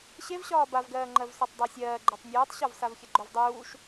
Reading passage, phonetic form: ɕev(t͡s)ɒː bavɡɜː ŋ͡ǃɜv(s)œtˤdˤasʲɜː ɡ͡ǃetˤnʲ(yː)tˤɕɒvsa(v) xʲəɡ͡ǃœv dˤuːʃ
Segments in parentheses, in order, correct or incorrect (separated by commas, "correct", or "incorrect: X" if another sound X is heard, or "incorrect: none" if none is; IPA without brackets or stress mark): incorrect: ɕ, correct, incorrect: uː, correct